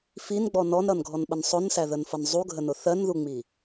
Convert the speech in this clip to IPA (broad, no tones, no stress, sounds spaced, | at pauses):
f i n ɡ͡b ɔ n ɔ n ɾ ʌ n ɡʱ ɔ n ɓ ə n sˤ ʊ n s æ ð ə n f ʌ n zˤ u ɡʱ ə n ʊ θ ɜ n ð u ŋ͡m i